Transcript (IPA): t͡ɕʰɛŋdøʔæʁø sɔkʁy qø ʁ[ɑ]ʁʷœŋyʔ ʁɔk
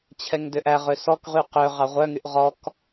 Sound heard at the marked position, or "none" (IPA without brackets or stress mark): ɑ